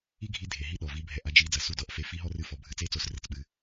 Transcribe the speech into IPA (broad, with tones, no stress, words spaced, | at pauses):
i˥ɡʱi˧˥ dʱe˩ ɦi˥ɗɔ˩ vi˧˥bʱɛ˧ʔa˧˥d͡ʒi˧˥ d͡zɐ˩su˧˥ dɔ˧˥ʔfe˧ fi˧˥ ɦɔ˥rɨ˧˥fɔ˩˧ bʱɨ˧ t͡se˥t͡so˧srɘ˧t͡s ɓɨ˧